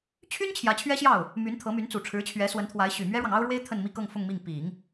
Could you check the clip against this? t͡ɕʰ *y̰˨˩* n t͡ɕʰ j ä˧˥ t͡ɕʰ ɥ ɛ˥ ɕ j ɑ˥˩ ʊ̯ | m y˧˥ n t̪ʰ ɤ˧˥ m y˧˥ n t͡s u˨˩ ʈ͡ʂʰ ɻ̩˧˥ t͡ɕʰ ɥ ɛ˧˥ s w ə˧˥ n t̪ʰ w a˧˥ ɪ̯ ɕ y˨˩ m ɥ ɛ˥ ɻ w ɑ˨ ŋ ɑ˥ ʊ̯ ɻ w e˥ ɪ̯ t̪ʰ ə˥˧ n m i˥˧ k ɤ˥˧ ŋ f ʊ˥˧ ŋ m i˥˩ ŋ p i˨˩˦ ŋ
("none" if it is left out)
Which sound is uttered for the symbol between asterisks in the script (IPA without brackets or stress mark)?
y˥